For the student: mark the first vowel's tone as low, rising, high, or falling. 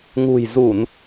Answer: low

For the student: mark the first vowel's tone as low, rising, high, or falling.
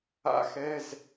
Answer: rising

